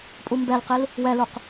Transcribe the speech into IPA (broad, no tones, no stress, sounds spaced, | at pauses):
pʼ u m b ɛ l q i l | w ɛ l u q